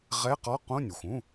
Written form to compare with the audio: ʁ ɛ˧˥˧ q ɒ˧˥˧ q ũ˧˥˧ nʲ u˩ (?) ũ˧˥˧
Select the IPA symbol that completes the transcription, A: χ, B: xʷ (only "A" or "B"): B